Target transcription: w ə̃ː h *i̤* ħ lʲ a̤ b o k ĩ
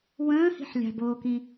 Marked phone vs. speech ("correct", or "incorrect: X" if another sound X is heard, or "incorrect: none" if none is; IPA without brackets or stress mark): correct